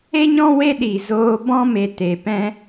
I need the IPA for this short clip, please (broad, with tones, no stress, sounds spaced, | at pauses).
e˦ ɲ ɔ̃˦ w e˦ ɗ iː˨ z oː˧ b ɔ̃˦ m e˨ t e˨ p ɛ̃˦